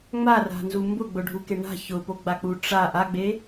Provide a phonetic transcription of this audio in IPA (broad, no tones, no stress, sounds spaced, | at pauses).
ŋ͡m a r a̤ n z u m b ʊ ɡ͡b ʊ ɖʱ u k e ɳ a̤ ç ʊ p o ɡ͡b a k͡p u ʈ͡ʂ a ʔ a ɡ͡b e